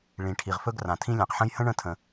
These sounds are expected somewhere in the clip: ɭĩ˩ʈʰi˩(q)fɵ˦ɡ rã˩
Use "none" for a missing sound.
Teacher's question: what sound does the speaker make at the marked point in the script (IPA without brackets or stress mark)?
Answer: ʁ